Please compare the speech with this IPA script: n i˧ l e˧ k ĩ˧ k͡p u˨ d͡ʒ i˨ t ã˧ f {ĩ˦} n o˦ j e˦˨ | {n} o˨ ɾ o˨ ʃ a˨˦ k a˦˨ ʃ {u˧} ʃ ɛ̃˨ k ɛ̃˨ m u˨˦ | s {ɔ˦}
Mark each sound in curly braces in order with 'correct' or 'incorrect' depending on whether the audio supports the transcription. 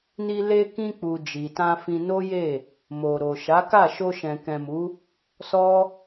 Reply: incorrect: ĩ˧, incorrect: m, incorrect: o˧, correct

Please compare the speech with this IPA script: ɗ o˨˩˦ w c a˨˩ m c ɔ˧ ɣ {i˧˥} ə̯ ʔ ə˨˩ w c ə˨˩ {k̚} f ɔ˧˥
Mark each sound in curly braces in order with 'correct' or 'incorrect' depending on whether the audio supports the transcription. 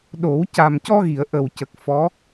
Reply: incorrect: i˨˩˨, correct

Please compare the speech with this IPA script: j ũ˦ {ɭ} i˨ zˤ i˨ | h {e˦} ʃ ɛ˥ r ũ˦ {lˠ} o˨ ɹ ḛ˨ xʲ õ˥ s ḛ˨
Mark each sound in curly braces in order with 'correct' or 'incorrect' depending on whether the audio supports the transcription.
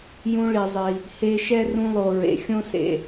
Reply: correct, correct, correct

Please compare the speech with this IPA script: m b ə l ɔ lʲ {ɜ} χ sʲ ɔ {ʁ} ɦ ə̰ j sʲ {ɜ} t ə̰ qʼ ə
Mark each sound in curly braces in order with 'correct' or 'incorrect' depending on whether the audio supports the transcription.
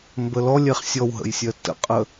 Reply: incorrect: ɛ, incorrect: w, correct

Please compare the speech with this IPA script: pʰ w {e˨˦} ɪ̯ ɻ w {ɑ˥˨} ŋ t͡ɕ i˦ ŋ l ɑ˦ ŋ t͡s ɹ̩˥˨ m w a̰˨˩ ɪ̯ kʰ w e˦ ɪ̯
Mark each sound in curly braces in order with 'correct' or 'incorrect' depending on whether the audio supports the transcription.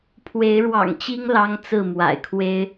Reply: correct, incorrect: ɑ̰˨˩

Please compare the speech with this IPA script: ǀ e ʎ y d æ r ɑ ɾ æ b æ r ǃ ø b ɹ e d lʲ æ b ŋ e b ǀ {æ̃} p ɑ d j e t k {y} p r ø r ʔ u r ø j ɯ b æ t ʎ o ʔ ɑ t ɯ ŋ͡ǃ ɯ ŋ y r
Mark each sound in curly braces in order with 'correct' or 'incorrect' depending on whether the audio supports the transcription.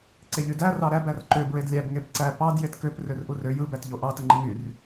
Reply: incorrect: æ, incorrect: ø

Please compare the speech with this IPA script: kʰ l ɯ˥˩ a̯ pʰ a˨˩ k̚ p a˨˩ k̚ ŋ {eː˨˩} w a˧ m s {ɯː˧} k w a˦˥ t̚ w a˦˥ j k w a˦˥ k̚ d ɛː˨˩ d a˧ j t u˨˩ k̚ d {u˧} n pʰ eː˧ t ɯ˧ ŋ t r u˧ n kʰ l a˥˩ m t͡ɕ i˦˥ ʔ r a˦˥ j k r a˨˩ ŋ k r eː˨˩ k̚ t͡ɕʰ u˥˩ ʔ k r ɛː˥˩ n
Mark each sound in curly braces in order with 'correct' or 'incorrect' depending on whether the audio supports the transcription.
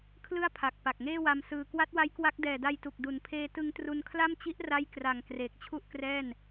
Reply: incorrect: eː˥˩, correct, incorrect: u˨˩

